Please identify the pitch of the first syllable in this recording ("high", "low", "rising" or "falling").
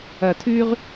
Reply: low